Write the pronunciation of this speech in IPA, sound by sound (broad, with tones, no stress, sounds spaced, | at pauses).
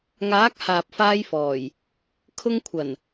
ŋ aː˨˥ k̚ h aː˨ p̚ f aː˧ j f ɔː˨˩ j | kʰ ʊ˧ ŋ kʷʰ ɐ˨˩ n